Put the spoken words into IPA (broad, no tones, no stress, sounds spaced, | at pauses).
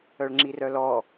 œ ɭ ŋ͡ǁ i r œ l ɔ